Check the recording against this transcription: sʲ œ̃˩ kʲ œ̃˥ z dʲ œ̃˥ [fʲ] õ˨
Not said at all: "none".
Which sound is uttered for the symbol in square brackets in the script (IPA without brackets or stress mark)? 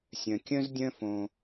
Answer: f